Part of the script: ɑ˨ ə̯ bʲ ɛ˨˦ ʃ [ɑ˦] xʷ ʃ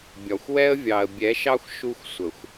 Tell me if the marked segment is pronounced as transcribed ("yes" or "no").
yes